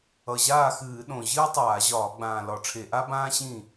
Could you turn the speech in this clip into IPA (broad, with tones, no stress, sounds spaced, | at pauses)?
ʌ˨˩ ʑ aː˥˩ x ɨː˧˩˧ ɗ õ˨˩ ʑ ɨː˥ tˤ aː˧˩˧ ʑ ɒː˧˩˧ ɡ͡b ãː˨˩ l ɒ˧˩˧ ʈ͡ʂʰ e˧˩˧ ʔ a˥ b ãː˥ ɕ ĩ˥˩